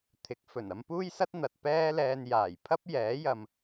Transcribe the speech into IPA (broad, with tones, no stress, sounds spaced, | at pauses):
t̪ʰ ɪ˨˥ k̚ f ɵ˨˩ n ɐ˧ m p uː˥ j s ɐ˥ t̚ n̪ ɐ˨ t̚ p ɛː˥ l ɛː˧ n j aː˨˩ j pʰ ɐ˥ p̚ j ɛː˨˥ j ɐ˨ m